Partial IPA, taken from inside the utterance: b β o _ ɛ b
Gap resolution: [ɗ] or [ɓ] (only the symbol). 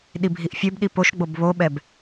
ɓ